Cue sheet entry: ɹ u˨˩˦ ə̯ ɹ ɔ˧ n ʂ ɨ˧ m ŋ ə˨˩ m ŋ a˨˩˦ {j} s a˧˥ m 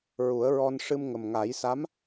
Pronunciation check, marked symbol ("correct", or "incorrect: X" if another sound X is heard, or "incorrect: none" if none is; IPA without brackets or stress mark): correct